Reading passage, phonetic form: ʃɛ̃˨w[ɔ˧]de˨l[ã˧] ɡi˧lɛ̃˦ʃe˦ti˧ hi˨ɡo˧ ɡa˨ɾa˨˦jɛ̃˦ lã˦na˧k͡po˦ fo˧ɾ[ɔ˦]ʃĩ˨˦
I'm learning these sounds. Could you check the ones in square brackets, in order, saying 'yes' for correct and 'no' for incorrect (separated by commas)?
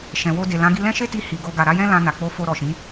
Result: no, no, no